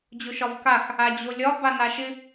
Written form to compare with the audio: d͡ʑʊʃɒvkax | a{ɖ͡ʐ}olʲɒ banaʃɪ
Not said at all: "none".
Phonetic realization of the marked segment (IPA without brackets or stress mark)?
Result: d͡ʑ